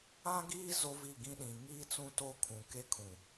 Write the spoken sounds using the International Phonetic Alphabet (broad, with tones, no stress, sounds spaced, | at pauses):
ã˦ ɡ iː˦ z o˦ v i˦˨ ɡ ĩ˦ ɗ ĩ˨ ŋ iː˦ t͡s ũ˦ t o˦ kʰ ũ˨ k e˦ kʰ ũ˨